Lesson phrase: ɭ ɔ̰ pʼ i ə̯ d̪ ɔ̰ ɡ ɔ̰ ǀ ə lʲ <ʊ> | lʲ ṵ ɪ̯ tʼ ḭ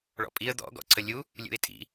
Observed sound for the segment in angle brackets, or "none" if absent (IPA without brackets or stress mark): u